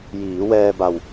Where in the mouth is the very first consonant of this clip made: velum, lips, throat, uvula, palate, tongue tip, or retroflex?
palate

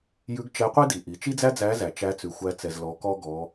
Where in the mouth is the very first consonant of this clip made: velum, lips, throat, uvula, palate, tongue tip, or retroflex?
palate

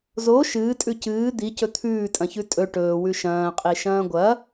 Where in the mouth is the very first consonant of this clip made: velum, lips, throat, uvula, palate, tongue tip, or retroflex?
tongue tip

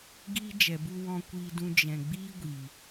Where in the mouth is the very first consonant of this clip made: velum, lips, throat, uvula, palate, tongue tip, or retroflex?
velum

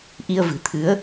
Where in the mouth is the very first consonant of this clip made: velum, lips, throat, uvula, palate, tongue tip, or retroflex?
throat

